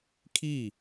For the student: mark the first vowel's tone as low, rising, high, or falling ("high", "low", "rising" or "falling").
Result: falling